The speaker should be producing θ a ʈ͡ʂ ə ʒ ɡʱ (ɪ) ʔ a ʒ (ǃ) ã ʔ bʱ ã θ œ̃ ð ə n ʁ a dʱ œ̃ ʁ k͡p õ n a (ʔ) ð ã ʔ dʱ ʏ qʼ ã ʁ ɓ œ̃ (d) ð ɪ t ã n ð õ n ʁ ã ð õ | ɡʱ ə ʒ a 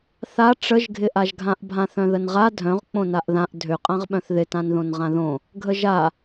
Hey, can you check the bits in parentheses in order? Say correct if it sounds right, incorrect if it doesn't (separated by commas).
correct, incorrect, correct, incorrect